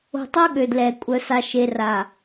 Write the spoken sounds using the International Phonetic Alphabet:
o̤˨tˤo˦ ɠø˨dlɛ˨ kʷʼœ˨sa˨ʃe˨ra˨

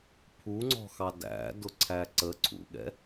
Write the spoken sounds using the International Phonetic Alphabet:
pʰuŋ͡ǀɔ̤xɑ dæ̰ dʊǀʰæǀə ǀʰṵɠɛ̰

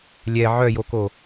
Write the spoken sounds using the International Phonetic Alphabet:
lʲɛ ʕœjoko

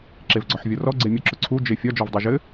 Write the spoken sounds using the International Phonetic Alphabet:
ǁevɡ͡ǀɒħvʲɔrɔ ɡ͡ǀemʲʊ ǁʊǀʰu d͡ʒefʲɒ d͡ʒɔvdˤeʒɘ

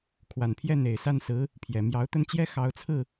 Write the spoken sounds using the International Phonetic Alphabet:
kʰwa˨˩npʰjɛ˥˩ n̪e˨˩ɪ̯sa˥˩nsɹ̩˧˥ | pʰjɛ˨˩ mjɑ˧˥ʊ̯t̪ə˥˩nt͡ɕjɛ˥ xɑ˧˥ʊ̯t͡sʰɹ̩˥˩

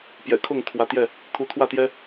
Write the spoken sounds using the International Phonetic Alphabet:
pjɛ̰˨˩kʰʊ˥˨ŋ t̪ʰwä˨˦t̪jɛ˥˨ | t̪ʰu˨˦t̪ʰwä˥˨t̪jɛ˦

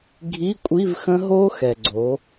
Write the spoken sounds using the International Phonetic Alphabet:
ɡʱi˧˥˧ kʷʼi˧˥˧vxə̃˦˥ɦo˦˥ xɛ˨ ɡ͡ǀo˨˦

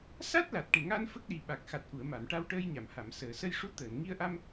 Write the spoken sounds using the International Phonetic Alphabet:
sa˦˥t̚la˨˩t̚ʈe˨˩ŋa˧n fə˦˥k̚ɗi˨˩ɓa˨˩k̚ xa˨˩t̚ʔu˨˩˨ə̯ma˨˩˨m ʈa˧wʈəː˧jɲa˨˩˨m ha˨˩˨m səː˨˩˨sə˧jʂu˧˥ t̪əː˨˩˨nŋi˧ə̯ʔa˧m

